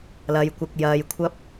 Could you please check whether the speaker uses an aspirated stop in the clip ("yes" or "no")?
yes